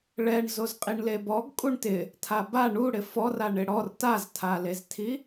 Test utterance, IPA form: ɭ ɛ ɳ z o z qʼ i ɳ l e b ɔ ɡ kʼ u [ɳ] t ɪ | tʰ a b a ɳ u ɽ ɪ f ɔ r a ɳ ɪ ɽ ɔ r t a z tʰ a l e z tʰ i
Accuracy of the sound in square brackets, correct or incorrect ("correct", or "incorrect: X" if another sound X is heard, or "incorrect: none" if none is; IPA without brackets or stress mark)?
correct